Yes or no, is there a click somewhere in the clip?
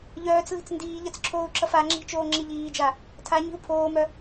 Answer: yes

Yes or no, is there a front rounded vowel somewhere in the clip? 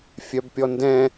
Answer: yes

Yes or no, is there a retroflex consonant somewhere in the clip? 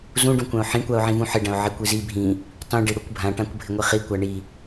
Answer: yes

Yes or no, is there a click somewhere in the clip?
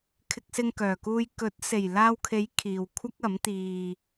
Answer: no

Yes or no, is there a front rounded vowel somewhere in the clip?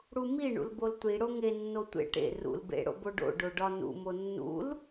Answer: no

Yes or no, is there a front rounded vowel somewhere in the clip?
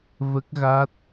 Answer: no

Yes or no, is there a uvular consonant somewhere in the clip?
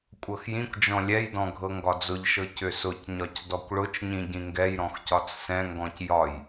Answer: no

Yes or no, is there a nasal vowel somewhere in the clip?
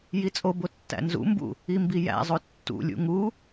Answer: no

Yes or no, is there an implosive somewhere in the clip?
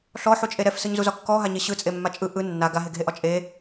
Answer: no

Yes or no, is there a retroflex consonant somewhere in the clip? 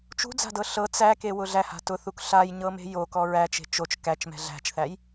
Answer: no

